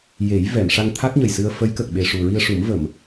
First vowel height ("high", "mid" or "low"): mid